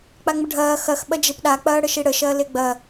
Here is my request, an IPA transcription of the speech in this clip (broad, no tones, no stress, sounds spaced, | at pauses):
k͡p a ŋ͡m ə ɖʱ ɐː x ɐ x ɓ ɐ d͡ʒ e p ɗ a k͡p ɐː ɽ ə ʃ i ɽ ə ʃ ɐː l e ɡ͡b ɐ